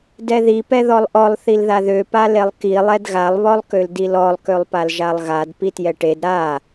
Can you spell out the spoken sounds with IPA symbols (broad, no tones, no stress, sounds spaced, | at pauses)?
d ɛ ð i p ɛ ð ɔ lˠ ʔ ɔ lˠ θ i l ð a ð ø p a l e lˠ k i lˠ ɛ d ɣ a lˠ β ɔ lˠ k ø l d i l ɔ lˠ k ø lˠ p a l ʒ a lˠ ɣ a d p i t j ɛ ʈ e d ɾ a